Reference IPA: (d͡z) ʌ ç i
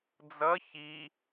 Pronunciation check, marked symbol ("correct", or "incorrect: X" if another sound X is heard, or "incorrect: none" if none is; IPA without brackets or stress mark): correct